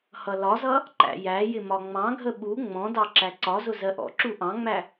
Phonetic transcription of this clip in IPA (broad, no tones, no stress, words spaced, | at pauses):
hʌlɒzʌ | ǃæ̰jæjɪ mɒŋ͡mɑ̃ɡʱə ɓu ŋ͡mɔ̃dɑ ǁæǀɒzʊ zɜʔɔ̰ǁu ʔɑ̃ŋ͡mæ